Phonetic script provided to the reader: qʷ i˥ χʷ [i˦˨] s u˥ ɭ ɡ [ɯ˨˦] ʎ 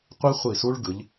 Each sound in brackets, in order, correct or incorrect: correct, correct

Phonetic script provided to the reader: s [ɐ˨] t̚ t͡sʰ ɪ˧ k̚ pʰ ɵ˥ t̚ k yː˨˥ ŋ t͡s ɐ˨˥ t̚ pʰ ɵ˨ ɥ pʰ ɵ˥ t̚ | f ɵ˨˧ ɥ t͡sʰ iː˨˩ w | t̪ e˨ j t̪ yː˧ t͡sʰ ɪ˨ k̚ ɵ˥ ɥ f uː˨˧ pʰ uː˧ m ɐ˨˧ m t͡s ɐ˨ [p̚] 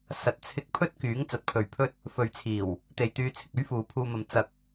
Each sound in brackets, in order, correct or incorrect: correct, incorrect: k̚

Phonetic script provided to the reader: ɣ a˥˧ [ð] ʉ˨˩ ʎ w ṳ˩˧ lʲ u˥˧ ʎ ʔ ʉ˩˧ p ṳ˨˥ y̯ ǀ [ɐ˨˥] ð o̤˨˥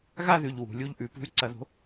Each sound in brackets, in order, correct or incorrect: correct, correct

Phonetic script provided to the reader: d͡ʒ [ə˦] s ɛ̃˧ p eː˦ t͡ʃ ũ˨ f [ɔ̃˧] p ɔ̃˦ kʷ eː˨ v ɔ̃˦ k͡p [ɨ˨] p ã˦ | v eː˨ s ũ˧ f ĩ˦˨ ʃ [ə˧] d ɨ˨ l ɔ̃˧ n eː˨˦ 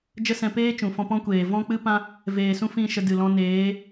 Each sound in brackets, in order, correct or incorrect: correct, correct, incorrect: ɨ˦, correct

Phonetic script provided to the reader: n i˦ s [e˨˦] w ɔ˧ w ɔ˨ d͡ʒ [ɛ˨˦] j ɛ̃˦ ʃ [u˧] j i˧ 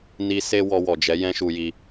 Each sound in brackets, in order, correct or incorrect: incorrect: e˦, correct, correct

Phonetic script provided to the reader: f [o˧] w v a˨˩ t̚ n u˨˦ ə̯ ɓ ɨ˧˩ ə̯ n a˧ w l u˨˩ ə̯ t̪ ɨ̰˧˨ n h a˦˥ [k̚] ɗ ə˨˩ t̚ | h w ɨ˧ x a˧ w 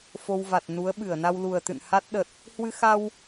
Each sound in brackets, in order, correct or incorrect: correct, incorrect: t̚

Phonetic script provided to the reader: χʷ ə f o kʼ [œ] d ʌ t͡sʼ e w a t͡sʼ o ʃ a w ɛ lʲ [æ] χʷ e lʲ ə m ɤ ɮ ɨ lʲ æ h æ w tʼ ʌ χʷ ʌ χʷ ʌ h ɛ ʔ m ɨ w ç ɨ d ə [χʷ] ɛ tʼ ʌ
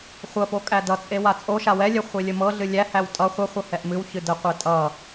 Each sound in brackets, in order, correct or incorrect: incorrect: æ, incorrect: ɛ, incorrect: qʷ

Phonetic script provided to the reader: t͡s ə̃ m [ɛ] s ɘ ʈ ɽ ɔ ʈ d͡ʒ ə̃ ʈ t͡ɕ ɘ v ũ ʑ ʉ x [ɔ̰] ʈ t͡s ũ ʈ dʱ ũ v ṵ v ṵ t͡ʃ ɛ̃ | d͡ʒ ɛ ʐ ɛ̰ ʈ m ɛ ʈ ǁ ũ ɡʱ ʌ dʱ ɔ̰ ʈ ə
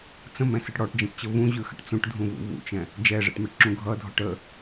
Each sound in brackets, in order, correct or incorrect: incorrect: ɛ̃, incorrect: ə̰

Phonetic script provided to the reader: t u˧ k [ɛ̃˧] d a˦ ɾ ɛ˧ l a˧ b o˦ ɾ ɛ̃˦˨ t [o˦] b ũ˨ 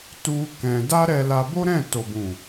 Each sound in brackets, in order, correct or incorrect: correct, incorrect: o˨

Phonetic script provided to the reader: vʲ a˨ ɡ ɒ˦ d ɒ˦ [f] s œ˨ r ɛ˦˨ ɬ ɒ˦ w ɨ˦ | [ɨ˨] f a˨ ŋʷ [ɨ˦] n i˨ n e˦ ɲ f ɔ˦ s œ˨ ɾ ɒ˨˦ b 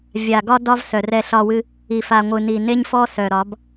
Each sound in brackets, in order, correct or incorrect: incorrect: v, incorrect: i˨, incorrect: ɨ˨

